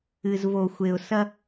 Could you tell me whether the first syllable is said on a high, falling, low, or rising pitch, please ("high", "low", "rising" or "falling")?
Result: low